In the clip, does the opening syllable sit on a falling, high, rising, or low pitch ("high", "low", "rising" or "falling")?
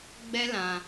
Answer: high